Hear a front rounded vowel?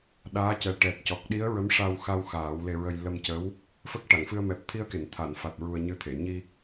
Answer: no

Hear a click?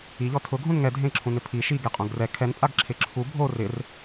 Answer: yes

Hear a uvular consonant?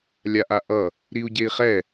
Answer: yes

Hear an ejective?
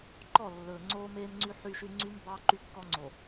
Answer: no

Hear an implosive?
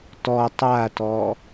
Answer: no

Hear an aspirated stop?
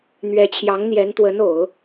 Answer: yes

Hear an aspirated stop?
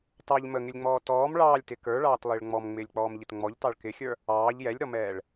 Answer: no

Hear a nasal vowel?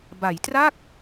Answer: no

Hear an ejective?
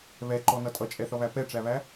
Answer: yes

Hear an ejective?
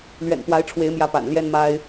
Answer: no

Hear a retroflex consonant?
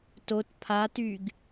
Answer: no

